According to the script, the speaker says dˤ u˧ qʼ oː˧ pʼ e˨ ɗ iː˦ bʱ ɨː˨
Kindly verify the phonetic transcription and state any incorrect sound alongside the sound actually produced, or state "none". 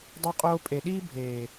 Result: ɨː˨ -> eː˨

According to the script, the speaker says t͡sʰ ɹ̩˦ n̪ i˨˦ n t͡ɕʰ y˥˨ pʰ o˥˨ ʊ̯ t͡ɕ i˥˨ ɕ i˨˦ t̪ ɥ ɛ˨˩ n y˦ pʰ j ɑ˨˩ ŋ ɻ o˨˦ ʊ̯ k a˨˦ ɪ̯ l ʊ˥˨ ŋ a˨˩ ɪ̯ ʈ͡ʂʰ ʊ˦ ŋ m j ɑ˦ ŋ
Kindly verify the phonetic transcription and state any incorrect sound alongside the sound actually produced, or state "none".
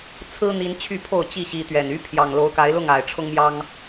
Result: ɻ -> l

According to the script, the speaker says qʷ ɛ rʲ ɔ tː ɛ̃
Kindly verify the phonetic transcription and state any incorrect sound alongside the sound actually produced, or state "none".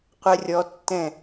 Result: none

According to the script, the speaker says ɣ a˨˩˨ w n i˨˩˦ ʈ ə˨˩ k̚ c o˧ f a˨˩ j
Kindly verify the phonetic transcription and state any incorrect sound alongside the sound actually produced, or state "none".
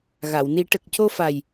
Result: none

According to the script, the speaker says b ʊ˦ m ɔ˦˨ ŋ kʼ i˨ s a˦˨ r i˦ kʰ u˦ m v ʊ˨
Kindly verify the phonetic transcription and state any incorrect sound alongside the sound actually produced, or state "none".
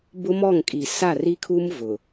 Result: none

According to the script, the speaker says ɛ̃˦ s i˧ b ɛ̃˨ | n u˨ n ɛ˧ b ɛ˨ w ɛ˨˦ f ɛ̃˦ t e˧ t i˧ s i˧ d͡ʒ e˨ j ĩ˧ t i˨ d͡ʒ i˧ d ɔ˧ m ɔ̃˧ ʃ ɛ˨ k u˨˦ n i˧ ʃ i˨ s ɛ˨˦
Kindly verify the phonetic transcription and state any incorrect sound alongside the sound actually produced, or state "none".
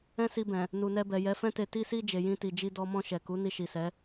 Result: w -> j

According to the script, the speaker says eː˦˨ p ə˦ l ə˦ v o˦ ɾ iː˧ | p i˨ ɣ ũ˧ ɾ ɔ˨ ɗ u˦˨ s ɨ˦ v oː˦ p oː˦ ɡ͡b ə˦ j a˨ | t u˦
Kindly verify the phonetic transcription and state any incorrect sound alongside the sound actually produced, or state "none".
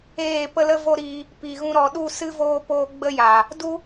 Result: t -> d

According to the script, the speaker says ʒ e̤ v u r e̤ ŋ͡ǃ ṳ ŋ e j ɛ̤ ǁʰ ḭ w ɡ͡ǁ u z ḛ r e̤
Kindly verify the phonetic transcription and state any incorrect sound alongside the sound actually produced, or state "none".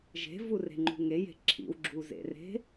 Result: ɛ̤ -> e̤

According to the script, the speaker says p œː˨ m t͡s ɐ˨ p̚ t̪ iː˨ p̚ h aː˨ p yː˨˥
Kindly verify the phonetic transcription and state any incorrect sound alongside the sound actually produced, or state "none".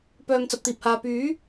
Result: none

